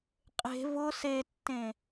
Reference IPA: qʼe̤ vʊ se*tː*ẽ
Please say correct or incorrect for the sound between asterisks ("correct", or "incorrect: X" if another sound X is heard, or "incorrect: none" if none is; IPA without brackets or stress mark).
correct